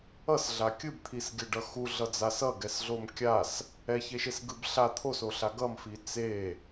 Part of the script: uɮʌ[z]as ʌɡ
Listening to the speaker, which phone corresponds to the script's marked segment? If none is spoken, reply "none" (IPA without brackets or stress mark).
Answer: d͡z